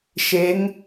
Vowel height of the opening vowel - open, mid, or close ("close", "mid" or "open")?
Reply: mid